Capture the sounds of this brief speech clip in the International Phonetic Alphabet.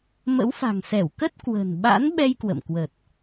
mə̰˧˥wfa̤˨˩ŋsɛ˧˩w kə˦˥t̚ kwə̤˨˩n ɓa̰˧˥nɓɛ˧j kwə̰˧˨mkwə˨˩t̚

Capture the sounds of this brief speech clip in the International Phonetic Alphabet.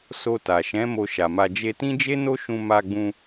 so˧ ta˨ʃɛ̃˨˦ mo˧ʃa˨ma˧ d͡ʒe˧tĩ˦d͡ʒe˦no˦ ʃũ˧ma˧ɡ͡bũ˧

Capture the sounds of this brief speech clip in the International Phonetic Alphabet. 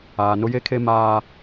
aː˨nʊ˦je˦kʰe˦ maː˦

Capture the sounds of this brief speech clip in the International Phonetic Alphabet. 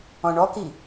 ɔ̃ɳɔki

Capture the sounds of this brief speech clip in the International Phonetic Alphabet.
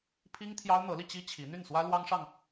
pʰi˥ŋt̪ʰjɑ˥ʊ̯n̪ɤ˧˥li˧ t͡ɕi˥t͡ɕʰi˧˥ n̪y˥˩nswä˥ lwɑ˥ŋʂɑ˨ŋ

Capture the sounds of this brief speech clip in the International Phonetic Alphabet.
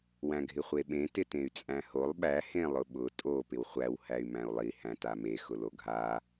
wæ̃ɡʱɪχʷeɓẽ tɪtẽy̯t͡sʼæ̃holˠ ɓæ hẽlˠʊɓʊ tʼo pɪwχʷæw hæy̯mæ̃u̯lˠi hæ̃tame xʊloɡʱa

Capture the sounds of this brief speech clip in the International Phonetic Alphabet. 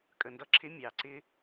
kʼə˨ ndʌ˦ǁʰɪ˦ mʲɑ˨ ǀɪ˦

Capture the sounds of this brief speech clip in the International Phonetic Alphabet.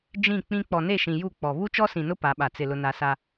d͡ʒĩ˦˨k͡pĩ˦ k͡pɔ˨ne˦˨ʃĩ˨ ju˦˨ k͡pɔ˨ βu˦t͡ʃɔ˦sĩ˨nʊ˦ pa˨˦ɓa˨ t͡sɪ˨ lʊ˦na˦ sa˦

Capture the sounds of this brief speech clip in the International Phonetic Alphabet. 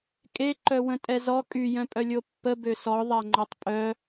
kʼe ǃœwə̃tʼɛzɔ kʼy jœ̃pʼœlʲopːə bøsɔ ðˤaŋ͡ǃɔtˤpʼœ

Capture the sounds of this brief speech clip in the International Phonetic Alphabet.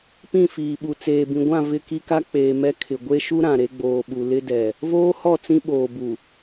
pĩ˦˨fiː˨ɓu˨ t͡seː˨bĩ˨ɡʷã˦˨ vɪ˦˨ki˦ka˦ k͡peː˨mɛ˦ kʰɪ˨ ɡʷe˦ʃu˦ ɾã˨ɾe˦ɡ͡boː˨ɓu˨ lɪ˦dɛ˨ | voː˦hɔ˦˨ t͡sĩ˦ɓoː˨bu˨

